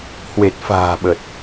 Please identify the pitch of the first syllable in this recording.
low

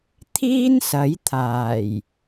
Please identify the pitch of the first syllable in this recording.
high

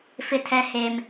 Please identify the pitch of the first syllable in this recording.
high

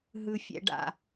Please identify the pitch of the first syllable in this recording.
low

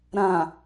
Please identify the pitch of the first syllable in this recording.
low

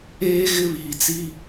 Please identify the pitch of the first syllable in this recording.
high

